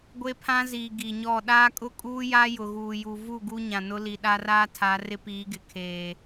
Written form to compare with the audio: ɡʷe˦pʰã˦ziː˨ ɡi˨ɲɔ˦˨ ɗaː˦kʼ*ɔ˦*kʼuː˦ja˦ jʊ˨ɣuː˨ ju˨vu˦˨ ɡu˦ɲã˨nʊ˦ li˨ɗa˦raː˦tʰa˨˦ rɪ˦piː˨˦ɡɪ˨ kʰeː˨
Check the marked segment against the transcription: incorrect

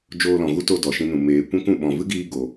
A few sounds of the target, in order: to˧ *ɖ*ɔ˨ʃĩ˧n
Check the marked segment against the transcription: incorrect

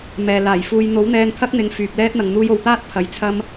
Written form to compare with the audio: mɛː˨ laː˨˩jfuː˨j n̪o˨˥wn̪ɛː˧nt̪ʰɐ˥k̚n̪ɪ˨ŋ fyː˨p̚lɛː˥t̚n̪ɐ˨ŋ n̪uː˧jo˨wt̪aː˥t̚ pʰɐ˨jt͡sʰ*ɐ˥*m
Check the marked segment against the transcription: correct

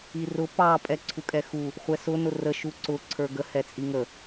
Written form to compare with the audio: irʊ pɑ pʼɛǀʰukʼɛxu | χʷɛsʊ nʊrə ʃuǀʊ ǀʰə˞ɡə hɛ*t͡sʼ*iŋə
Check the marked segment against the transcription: correct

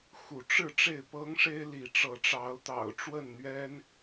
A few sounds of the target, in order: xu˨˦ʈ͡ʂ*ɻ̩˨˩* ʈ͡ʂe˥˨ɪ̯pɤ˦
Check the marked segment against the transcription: incorrect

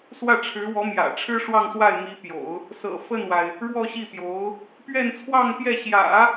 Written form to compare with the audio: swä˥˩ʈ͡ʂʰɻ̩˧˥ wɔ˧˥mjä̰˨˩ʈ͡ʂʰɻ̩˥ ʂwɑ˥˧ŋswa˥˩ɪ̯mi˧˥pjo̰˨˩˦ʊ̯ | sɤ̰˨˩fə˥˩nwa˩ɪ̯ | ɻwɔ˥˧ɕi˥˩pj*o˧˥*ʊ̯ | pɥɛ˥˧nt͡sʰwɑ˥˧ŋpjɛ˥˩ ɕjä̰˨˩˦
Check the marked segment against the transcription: correct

